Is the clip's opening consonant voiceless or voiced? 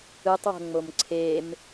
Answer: voiceless